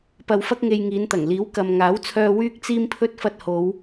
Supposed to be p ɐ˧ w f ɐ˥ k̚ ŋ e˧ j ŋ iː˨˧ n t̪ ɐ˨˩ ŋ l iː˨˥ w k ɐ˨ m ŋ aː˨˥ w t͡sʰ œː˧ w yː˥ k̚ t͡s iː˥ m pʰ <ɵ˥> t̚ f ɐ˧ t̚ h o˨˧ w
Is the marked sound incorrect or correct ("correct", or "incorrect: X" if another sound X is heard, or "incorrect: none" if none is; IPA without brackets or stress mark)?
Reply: correct